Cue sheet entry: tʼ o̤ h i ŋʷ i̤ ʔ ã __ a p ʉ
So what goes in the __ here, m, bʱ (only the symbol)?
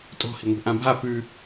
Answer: bʱ